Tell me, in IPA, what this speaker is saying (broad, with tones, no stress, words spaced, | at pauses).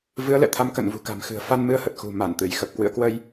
vɨ˨˦ə̯lɛ̰˧˨t̪ʰa˧m kə̰˧˨nvṳ˨˩ka̤˨˩mxɨ̤˨˩ə̯ fa˧nmɨ˧ə̯hə˨˩t̚ xṳ˨˩ma˧˩n t̪ɨ˧˩jxə˨˩p̚ kwɨ̰˧˨ə̯kwə˧j